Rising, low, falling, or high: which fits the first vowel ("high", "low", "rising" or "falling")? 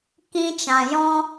high